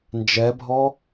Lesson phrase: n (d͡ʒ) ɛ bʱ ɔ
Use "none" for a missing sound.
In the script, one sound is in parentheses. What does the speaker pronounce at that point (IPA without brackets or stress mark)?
d͡ʒ